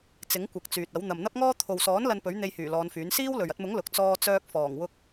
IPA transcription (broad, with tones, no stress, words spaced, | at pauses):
t͡sɪ˨˥ŋkʷɐ˨k̚ t͡syː˨t̚ɐ˨˥w n̪ɐ˨mn̪ɐ˥p̚ŋɔː˥ t̪ʰo˨wsɔː˨˥n lɐ˧npɵ˨˥ɥ n̪e˧jhyː˨˩ lɔː˨˧nfyː˨˥n siː˥wlɵ˨ɥ ɐ˧t̚mʊ˨˥ŋ lʊ˨k̚ t͡sɔː˧t͡sœː˧k̚fɔː˨˩ŋ wʊ˧k̚